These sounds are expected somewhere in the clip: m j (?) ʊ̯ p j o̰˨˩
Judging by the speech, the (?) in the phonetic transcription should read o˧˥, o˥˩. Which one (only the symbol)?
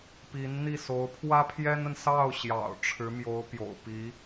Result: o˧˥